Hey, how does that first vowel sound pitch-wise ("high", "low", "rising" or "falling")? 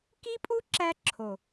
high